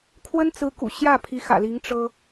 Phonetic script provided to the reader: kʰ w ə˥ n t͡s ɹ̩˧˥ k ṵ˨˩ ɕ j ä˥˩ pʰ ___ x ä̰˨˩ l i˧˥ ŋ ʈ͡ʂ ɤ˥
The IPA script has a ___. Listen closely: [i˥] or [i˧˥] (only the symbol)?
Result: i˧˥